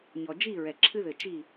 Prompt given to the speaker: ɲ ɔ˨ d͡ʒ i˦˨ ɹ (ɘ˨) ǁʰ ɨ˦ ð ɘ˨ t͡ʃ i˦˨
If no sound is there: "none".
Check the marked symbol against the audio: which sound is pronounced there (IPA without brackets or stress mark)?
ɛ˨